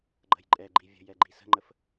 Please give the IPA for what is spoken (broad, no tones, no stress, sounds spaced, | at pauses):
ɡ͡ǃ ə̤ j ǃʼ ɛ ɡ͡ǃ i vʲ ə̤ j ɛ ɡ͡ǃ i s ə̤ ŋ͡ǃ ə f